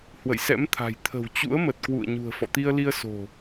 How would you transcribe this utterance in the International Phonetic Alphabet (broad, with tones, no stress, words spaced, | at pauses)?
hwə̰˧˨jsɛ̰˧˥mt̪ʰa̤˨˩j t̪ʰə̤˨˩wt͡ɕṵ˧˥ə̯mə˨˩t̚kwṵ˧˨ə̯ ɲṳ˨˩ə̯fɔ̰˧˨t̪i˧ə̯li˧ə̯ so̤˨˩